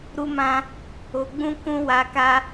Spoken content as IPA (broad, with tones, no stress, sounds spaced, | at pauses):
ɾ u˦ m ã˦ | o˧ ɡ͡b ũ˦ k ũ˦ w a˧ k a˦